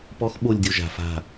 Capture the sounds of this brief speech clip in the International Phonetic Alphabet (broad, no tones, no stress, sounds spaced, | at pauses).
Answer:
p ɔ x ɓ o lʲ dʲ o ʒ a̤ f a̤